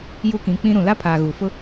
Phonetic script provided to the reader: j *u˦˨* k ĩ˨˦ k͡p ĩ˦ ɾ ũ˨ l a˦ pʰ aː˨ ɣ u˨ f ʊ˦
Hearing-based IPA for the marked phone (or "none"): u˦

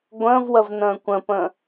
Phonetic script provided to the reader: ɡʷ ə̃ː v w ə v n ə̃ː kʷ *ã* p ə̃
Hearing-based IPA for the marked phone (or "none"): ə̃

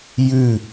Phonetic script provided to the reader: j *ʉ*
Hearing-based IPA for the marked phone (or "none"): ʉ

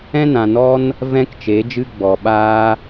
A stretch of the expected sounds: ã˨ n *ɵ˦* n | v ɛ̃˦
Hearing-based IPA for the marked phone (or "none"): ɔ˦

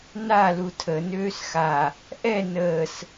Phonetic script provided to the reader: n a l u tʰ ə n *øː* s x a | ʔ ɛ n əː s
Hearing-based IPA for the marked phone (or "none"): øː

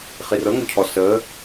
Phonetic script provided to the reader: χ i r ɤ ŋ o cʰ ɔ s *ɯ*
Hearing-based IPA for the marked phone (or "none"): ə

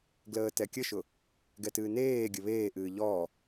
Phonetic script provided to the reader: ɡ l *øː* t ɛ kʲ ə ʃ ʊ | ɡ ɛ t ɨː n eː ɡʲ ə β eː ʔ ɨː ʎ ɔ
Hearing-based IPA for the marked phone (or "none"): əː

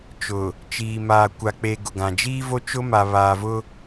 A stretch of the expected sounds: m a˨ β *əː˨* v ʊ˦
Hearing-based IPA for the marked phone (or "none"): aː˨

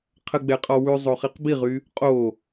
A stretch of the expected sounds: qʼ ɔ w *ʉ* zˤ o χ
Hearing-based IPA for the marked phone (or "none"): ʉ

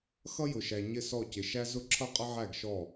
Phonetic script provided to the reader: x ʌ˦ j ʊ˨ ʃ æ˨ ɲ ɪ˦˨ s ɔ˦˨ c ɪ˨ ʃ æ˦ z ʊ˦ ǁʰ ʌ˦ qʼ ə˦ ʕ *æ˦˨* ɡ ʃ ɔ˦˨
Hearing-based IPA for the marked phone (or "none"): æ˦˨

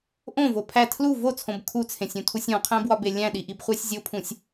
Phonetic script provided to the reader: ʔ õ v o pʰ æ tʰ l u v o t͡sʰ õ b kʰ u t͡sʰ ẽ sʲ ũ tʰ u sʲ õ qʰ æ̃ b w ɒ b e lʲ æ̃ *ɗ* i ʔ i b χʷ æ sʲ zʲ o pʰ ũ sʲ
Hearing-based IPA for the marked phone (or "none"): ɗ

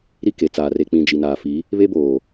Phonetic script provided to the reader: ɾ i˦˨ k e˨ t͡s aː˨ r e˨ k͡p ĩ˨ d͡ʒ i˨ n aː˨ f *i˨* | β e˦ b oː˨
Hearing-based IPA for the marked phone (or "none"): i˨˦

